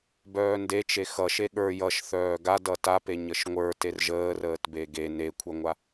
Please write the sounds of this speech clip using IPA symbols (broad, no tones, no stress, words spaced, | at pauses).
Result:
bœːndet͡ʃe xʌ ʃeɠə˞ jʌʃ θœːɡa dʌtape ɲəʃŋʷə˞ terʒəːrəːt beɡe nekʷʰœŋʷa